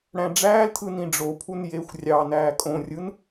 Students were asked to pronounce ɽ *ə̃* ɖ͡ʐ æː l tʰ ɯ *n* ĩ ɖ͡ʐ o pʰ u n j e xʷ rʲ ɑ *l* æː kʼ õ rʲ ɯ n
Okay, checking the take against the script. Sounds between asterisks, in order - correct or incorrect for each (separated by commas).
incorrect, correct, incorrect